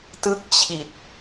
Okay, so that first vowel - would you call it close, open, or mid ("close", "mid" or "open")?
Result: close